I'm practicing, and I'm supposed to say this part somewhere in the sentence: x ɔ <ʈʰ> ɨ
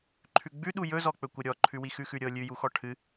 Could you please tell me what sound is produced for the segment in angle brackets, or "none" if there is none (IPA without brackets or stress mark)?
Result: ʈʰ